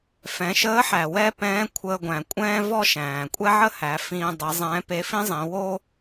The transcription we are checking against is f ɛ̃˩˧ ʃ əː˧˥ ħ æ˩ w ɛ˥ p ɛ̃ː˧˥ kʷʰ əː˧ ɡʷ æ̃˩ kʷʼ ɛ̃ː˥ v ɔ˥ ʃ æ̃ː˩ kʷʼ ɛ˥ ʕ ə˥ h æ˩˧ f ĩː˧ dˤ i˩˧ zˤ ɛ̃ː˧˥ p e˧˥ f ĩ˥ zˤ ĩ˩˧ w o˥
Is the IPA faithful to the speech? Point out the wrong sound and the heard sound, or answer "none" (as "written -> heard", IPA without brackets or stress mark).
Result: none